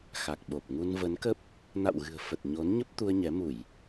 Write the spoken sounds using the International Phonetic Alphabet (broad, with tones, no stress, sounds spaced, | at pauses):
x a˨˩ k̚ ɓ o˨˩ p̚ ŋ u˧ n v ə˨˦ n k ə˦˥ p̚ | n a̰˧˨ w ɣ ɨ̤˨˩ ə̯ f ə˨˩ t̚ ɲ o˨˦ n ɲ ə˦˥ p̚ t̪ u˧ ə̯ ɲ ɛ˨˦ m u˧˩˨ j